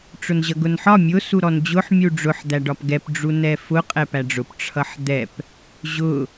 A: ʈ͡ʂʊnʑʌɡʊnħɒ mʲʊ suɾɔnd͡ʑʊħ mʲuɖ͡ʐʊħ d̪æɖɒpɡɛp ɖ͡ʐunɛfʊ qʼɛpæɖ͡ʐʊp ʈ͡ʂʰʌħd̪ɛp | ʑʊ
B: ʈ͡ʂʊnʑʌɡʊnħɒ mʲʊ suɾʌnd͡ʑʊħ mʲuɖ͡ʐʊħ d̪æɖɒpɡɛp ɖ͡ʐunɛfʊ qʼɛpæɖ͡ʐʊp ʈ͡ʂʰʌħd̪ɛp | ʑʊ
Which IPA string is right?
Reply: A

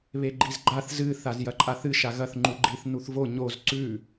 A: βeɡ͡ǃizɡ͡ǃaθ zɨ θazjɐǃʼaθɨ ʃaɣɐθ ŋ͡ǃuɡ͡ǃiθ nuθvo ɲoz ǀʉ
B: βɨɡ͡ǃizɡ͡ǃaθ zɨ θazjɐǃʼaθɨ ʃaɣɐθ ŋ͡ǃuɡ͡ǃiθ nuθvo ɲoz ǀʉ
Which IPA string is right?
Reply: A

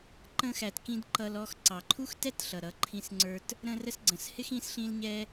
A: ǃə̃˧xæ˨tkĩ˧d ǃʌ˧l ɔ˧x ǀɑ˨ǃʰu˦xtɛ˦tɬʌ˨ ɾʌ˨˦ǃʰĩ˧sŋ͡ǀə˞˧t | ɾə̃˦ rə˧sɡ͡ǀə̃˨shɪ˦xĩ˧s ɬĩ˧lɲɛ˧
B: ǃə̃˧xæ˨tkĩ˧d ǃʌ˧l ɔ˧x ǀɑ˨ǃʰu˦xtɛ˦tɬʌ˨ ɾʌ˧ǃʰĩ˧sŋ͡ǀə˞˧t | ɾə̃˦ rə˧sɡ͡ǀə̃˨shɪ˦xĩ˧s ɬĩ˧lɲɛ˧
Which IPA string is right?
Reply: A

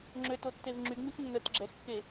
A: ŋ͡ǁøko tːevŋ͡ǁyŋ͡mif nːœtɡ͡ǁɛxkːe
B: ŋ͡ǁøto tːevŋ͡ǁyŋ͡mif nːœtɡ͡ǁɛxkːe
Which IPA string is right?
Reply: B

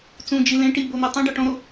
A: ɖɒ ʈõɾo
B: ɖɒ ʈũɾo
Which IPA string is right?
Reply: A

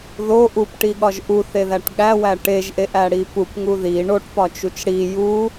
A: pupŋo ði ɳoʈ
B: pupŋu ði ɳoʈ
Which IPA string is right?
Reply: B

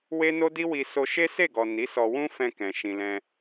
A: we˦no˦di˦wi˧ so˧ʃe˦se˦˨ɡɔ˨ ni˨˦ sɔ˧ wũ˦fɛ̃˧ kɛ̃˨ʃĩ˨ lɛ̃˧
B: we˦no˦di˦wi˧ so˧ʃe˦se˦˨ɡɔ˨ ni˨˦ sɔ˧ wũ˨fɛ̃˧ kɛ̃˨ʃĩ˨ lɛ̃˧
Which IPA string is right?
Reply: A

